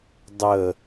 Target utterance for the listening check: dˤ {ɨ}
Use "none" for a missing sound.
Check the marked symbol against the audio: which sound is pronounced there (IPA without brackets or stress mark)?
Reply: ə